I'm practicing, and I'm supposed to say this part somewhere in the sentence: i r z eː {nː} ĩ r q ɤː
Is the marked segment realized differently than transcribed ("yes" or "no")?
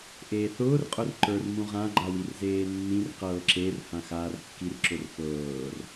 no